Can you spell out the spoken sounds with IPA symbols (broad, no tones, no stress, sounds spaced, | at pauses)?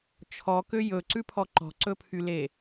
t͡ʃʰ ɔ k ø j ɵ ǀ ʉ pʰ ɔ ǃ ɔ̤ ǀ ɵ pʰ y l e